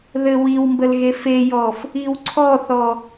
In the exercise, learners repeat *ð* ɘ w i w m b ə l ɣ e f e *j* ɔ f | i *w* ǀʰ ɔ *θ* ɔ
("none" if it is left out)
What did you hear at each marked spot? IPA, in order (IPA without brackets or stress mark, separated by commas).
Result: ð, j, w, θ